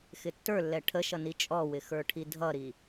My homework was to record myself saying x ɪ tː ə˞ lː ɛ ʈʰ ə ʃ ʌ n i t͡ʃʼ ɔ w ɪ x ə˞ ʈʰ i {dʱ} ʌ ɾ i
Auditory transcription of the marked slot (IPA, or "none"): dʱ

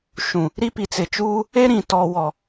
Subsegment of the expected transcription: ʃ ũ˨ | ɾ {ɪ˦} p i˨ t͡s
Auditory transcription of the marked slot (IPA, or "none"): i˦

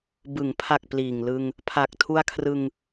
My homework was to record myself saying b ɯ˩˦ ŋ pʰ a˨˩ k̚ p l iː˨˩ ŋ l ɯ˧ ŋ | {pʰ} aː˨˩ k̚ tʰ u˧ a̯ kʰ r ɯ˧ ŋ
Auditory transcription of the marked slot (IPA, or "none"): pʰ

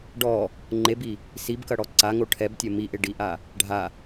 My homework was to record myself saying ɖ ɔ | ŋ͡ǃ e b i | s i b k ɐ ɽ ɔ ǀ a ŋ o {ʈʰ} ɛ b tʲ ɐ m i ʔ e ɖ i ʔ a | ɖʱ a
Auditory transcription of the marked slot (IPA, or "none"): ʈʰ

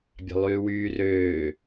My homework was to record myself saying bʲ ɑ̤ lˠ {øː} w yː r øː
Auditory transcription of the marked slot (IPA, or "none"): yː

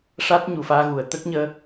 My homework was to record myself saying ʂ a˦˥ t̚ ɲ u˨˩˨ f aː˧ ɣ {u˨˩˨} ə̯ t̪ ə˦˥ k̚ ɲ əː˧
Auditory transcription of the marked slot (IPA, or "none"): u˨˩˨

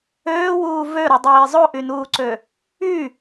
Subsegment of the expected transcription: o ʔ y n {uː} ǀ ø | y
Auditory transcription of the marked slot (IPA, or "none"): uː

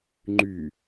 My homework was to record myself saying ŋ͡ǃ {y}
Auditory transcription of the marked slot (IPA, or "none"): y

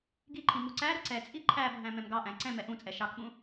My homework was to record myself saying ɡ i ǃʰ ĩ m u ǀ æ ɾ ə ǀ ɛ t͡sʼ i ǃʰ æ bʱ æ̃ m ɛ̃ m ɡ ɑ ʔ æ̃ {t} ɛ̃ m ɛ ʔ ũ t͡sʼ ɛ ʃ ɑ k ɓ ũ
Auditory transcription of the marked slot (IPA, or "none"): ǀ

